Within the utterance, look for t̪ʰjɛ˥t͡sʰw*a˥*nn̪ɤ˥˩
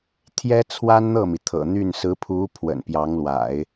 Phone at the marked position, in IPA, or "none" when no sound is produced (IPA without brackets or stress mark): a˥